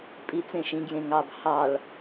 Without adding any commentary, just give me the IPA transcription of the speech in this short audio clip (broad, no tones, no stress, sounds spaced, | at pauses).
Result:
pʼ i t͡s ẽ ʃ ĩ ɡ j ẽ ŋ ɑ b h ɑ ɭ